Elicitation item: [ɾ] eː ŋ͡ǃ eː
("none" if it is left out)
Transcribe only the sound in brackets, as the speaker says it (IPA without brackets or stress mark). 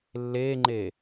lː